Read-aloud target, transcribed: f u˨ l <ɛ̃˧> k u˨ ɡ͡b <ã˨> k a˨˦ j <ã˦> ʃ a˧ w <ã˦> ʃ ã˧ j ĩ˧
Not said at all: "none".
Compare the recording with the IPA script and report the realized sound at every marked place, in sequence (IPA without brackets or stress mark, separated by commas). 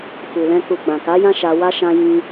ɛ̃˧, ã˨, ã˦, a˦